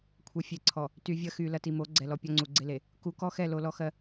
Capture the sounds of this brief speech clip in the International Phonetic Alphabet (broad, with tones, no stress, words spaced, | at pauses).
kʷʰɛ˨ fʲe˨ǀʰɔ˨ | ty˨vʲɐ˦xy˨ lɐ˨ti˨mo˨˦ ɡ͡ǀɛ˨lɔ˨ pʲɔ˦ŋ͡ǀu˨ɡ͡ǀe˦le˨ | ku˨˦kɔ˦xɛ˦˨ lo˨lɔ˦xɜ˦